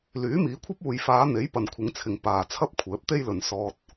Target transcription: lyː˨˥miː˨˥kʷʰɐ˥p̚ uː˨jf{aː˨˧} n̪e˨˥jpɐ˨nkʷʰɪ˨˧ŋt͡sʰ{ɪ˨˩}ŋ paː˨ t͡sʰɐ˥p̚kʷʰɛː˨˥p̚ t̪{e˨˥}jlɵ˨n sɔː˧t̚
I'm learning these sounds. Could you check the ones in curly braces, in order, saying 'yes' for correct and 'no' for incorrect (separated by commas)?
yes, no, no